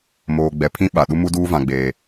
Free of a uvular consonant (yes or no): yes